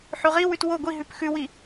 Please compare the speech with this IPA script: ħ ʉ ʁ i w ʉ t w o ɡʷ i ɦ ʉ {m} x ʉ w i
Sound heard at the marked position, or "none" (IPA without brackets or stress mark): p